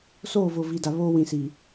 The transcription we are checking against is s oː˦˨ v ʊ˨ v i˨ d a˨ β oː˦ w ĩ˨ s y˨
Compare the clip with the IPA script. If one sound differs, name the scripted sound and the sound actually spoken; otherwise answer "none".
y˨ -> i˨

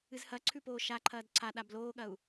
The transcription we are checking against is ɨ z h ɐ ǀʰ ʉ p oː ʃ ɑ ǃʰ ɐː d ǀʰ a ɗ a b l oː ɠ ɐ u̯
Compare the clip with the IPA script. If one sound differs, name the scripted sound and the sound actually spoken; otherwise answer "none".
ɑ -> a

